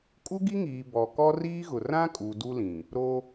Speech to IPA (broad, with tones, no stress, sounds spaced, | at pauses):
kʼ u˦ ɡ i˦ ŋ iː˨ b ɔ˨ k ɔ˦ r iː˦ ɣ ʊ˨ r ã˦ kʼ u˨ d u˦ l ĩ˨ | ɾ o˦